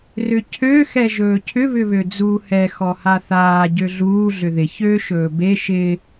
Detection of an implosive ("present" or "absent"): absent